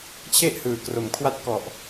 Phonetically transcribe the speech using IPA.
t͡ɕʰ e˥˩ ʔ h ɯː˨˩ k r o˩˦ m kʰ w a˦˥ t̚ k ɔ˨˩ ʔ

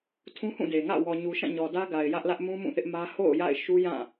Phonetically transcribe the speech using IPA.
tʰ ũ˦ h ũ˦˨ d e˨ ŋ ä̰˦˨ w ɔ˨ ɲ u˨ ʃ ã˦˨ ɲ ɔ˨ d ä˦ ɡ a˨ ɪ̯ j ä˦ ʔ l ä˦ ʔ m ũ˦ m ũ˦˨ θ ɪ˦ ʔ m ä˦ h o̰˦˨ ʊ̯ j a̰˦˨ ɪ̯ ʃ u˦ j ã˦˨

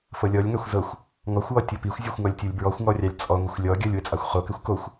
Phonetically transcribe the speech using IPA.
f ɤ lʲ ɔ lʲ ŋ ɑ xʷ z ɤ xʷ | ŋ ɔ xʷ w ɔ tʲ ɤ p i xʷ zʲ ɤ xʷ ŋ ɔ lʲ tʲ o lʲ b ɹ ɔ xʷ ŋ ɔ rʲ ɑ lʲ t͡sʼ ɔ ŋʷ ɑ xʷ lʲ ɔ ɡʲ ɤ lʲ w ɘ t͡sʼ ɑ xʷ χ o k ɘ xʷ k o xʷ

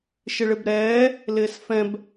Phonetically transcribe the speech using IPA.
ʃ ɪ ɭ ɪ b ɾ ɛː | l ɪː s f ɛ̃ b

